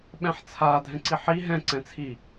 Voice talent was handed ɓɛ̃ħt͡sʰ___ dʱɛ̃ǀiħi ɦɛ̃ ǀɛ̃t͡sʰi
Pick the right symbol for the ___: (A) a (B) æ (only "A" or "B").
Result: A